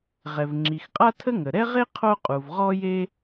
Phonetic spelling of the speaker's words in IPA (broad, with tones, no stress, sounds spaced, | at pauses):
ʁ ɛ˩ v ŋ͡ǁ i˩ x qʼ a˥ tʰ ə˥ ŋ ə˩ ɾ ɛ˥ ʁ e˥ qʰ o˥ qʼ u˩ v ʁ ɔ˥ j e˥